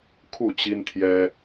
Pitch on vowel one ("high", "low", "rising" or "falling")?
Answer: falling